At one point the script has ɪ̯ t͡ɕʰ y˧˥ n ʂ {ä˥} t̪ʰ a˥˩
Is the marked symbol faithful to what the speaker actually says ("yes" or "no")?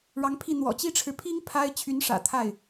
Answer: no